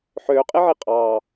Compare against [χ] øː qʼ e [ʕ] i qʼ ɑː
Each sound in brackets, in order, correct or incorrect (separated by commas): incorrect, correct